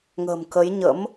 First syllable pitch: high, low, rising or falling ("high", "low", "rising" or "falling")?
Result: low